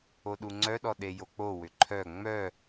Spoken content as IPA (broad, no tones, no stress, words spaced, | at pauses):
oɗuŋ͡ǀœɗɔ ɗejok͡po wʏǃʰœ ŋ͡mœ